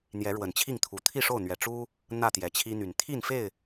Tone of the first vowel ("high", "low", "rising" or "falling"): rising